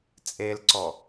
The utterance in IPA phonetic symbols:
t͡sʼ e l ǀ ɔ

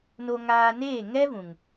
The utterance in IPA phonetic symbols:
n o˧ ŋ aː˧ n eː˦˨ ŋ ɛ˦ v ũ˨ ŋ

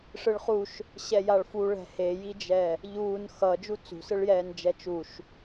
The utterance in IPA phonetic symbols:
ʂ ɯ ɭ χ u ʃ | ɕ ɛ j a ɭ f u ɭ ɛ̤ h e j i d͡ʒ ɛ | ʎ uː n x ʌ d͡ʒ u t͡s ṳ s ɯ ɭ j ɛː n d͡ʒ ɛ t͡ʃ u ʃ

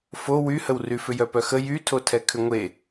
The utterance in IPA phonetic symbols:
f o w y h ə w r y f ʏ j œ p œ x ə j y tʰ o tʰ ɛ kʰ ʏ ŋʷ e

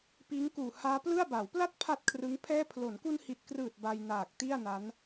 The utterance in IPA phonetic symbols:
p iː˦˥ ŋ k uː˨˩ h aː˦˥ p l ɯ˥˩ a̯ b a˩˦ w p l a˥˩ t̚ pʰ a˥˩ t̚ kʰ r ɯ˦˥ ŋ pʰ ɛː˥˩ pʰ l o˩˦ n k u˧ n h i˨˩ t̚ k r ɯː˨˩ t̚ b a˧ j n aː˨˩ k̚ t i˥˩ a̯ n a˦˥ n

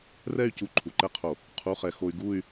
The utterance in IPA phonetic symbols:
r ɛ˥˧ y̯ c u˧ ǃʰ u˩ ǃ ɛ˥˧ qʰ o˧˩˧ | qʰ u˧˥˧ χ ɛ˧ x o˧ y̯ ɡ u˥˧ y̯

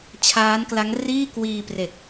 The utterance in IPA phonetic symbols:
t͡ɕʰ aː˦˥ n k l a˦˥ ŋ r iː˥˩ k w iː˧ p r e˨˩ k̚

